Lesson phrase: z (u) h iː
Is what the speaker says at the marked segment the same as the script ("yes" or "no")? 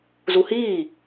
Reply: yes